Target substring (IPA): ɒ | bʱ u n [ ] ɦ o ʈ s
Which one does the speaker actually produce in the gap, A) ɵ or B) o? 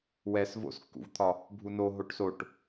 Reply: B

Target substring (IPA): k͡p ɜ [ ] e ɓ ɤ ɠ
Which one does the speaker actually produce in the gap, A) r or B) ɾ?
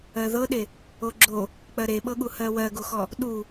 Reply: B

